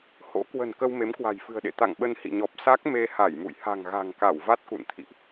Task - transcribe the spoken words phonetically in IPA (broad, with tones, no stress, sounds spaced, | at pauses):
h o̰˧˥ k w ə̤˨˩ n k ə˧ w m e˨˦ m k w a̤˨˩ j f ɨ̤˨˩ ə̯ ɗ ḛ˧˨ t̪ a̰˧˨ ŋ ɓ ə˧ n h ḭ˧˨ ɲ ɔ˨˩ p̚ s a˦˥ k̚ m e˧ h a˧˩ j m ṵ˧˨ j h a̤˨˩ ŋ ɣ a̤˨˩ ŋ k a˧˩ w v a˦˥ t̚ k ṵ˧˨ n t̪ʰ ḭ˧˨ ʔ